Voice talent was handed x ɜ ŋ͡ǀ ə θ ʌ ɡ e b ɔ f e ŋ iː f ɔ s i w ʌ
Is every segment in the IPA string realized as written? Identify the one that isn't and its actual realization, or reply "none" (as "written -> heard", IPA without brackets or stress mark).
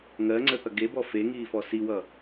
x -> ŋ